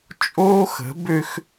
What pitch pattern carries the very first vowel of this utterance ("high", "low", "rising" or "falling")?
high